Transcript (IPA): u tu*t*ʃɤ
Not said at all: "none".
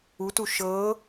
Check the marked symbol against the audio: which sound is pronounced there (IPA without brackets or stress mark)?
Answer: none